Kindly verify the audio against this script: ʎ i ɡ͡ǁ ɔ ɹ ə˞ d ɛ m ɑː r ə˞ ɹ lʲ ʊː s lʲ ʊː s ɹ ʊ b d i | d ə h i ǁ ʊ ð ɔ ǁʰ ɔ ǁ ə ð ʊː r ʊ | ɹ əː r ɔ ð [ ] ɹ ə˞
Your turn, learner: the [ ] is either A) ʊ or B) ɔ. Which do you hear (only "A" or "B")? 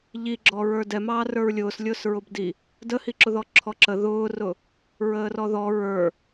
B